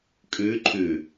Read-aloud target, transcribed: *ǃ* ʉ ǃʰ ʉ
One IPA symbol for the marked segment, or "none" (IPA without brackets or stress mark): kʼ